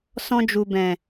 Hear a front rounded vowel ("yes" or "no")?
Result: no